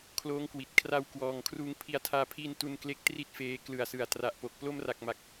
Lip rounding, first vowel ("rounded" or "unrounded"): rounded